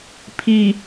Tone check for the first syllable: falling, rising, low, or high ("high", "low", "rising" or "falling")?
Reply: low